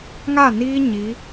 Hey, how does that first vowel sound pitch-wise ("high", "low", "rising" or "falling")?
falling